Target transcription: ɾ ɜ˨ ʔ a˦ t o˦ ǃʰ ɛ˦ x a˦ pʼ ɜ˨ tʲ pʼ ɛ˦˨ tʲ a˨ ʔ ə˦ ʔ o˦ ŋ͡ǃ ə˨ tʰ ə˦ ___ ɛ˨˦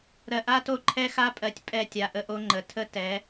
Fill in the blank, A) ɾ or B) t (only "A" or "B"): B